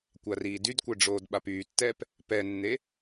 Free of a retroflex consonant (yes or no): no